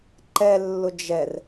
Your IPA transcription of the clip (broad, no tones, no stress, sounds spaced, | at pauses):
ǃ ɛ lː ʊ d͡ʒ ɛ r